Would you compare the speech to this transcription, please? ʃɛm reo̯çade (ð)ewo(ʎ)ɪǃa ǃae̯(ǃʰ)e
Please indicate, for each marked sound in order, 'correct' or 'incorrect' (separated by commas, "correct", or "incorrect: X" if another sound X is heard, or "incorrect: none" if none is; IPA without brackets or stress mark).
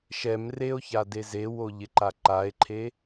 incorrect: z, correct, correct